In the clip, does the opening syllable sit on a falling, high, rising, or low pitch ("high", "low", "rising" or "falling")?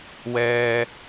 high